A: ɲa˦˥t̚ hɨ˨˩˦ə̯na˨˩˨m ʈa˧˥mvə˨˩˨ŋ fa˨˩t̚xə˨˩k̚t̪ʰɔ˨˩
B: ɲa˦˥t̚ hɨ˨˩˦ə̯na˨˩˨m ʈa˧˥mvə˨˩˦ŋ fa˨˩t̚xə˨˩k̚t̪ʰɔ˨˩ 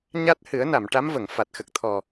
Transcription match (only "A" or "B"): A